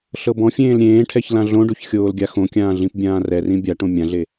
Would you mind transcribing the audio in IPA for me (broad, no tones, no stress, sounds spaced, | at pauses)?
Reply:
ɬ ɤ b ɔ̃ fʲ ẽː l ɾʲ ẽː ʈʰ ɛ ç l ã ɮ õ ɖ o ç xʲ oː l ɡʲ a x õ kʲ ãː ɮ ĩ p bʲ ãː r ɛ r ĩ bʲ a ʈ õ mʲ ã ɮ e